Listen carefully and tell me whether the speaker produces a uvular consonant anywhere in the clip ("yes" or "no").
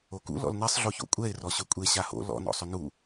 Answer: no